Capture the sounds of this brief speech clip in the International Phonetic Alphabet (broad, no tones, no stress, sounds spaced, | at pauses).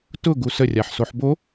t ʊ ɡ u s ə rʲ a ħ s o ħ b o